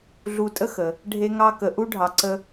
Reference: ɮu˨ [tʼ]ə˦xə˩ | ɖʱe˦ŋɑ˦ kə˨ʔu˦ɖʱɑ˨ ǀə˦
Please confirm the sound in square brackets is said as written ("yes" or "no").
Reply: yes